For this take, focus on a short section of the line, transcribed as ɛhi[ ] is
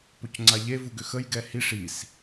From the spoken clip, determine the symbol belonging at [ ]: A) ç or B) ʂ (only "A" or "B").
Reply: B